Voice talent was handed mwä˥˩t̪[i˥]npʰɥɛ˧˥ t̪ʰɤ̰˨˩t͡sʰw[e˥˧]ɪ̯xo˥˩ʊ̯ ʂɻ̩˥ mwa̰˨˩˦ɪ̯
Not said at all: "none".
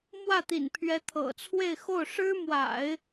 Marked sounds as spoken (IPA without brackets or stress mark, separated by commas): ḭ˨˩, e˥˧